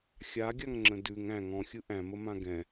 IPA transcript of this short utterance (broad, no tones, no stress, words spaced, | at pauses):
xʲaɡʲaŋŋ͡ǁə̃ dʉŋ æ̃ŋ ɔ̃xʲɯ ʔæ̃məmã ɡɛ̃